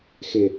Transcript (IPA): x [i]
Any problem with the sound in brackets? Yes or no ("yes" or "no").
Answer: yes